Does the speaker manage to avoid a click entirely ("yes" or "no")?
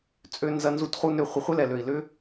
yes